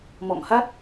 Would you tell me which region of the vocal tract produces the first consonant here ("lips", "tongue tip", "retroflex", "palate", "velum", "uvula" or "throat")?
lips